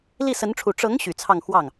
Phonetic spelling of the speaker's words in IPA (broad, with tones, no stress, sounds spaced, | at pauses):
l i˥˩ s ə˧˥ n ʈ͡ʂʰ u˨˩ ʈ͡ʂ ɤ˧˥ ŋ ɕ y˨˩ t͡sʰ ɑ˥˧ ŋ x w ɑ˥˩ ŋ